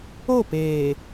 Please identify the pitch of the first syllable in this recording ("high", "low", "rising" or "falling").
falling